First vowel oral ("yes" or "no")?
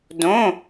no